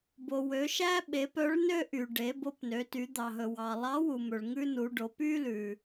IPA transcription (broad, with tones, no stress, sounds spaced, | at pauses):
b o˩ w ø˩˧ ʃ æ˥ ɓ e˩˧ p œ˧˥ ɭ n ø˥ ʔ y˩ ɖ e˩˧ b o˧ p n ø˩˧ t y˩˧ d̪ ɑ˩ ɦ ɵ˩ w ɑ˩ lˠ ɑ˧˥ w u˩ m ɵ˩ ɭ ŋ ʉ˥ n u˩˧ ɖ o˩˧ p y˥ l ʉ˩